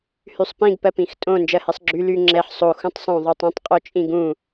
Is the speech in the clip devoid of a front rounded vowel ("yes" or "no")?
no